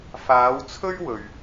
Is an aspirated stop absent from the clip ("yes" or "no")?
no